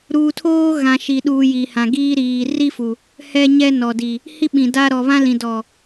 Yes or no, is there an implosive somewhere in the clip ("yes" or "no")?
yes